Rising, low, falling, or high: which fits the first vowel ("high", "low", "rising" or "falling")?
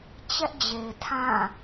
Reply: high